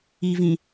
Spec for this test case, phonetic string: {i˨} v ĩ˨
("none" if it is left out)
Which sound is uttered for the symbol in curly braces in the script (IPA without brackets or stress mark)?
i˨